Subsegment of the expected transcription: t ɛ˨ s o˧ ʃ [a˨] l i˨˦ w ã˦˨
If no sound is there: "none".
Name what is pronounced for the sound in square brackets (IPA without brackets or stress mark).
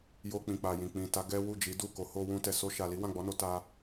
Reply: a˨